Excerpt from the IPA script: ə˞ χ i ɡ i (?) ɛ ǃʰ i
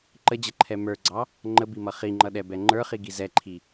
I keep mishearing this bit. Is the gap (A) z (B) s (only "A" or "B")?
A